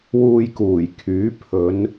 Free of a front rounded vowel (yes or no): no